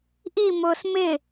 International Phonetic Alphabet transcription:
ʔ i m ʊː s m ɪ

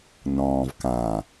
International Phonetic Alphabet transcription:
n ɔ̃ː v k ã

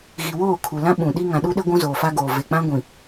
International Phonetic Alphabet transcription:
ɣ i˨ w oː˦˨ kʰ u˨ l ã˦ ɓ ũ˨ ɗ i˦ ŋ ã˨ ɗ u˦ ɗ e˦ ɡʷ ũ˦ z oː˨ f a˦ ɡ oː˨ v e˨ k͡p ã˦ ɡʷ ĩ˨

